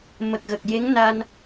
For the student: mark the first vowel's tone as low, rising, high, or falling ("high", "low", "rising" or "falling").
low